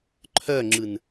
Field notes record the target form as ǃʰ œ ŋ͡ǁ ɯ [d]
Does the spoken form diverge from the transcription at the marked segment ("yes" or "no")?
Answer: yes